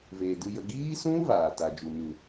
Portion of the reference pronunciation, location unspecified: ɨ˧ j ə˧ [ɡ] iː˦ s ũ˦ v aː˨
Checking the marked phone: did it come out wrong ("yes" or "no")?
no